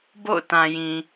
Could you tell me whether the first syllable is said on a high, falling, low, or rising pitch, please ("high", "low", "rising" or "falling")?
falling